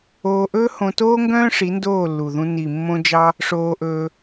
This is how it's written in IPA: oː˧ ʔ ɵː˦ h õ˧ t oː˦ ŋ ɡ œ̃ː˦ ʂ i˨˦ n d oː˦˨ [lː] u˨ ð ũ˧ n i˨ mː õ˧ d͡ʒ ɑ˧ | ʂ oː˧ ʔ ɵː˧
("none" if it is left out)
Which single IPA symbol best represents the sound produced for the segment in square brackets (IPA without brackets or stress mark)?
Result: lː